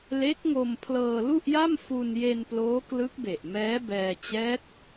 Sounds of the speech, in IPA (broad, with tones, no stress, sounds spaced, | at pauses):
l e˦˥ k̚ ŋ o˧ m pʰ l ɤː˧ l u˥˩ ʔ j a˥˩ m f u˧ n j e˧ n p l oː˦˥ k l ɯ˦˥ k̚ b e˨˩ ʔ m ɛː˦˥ b ɛː˧ t͡ɕ ɛː˦˥ t̚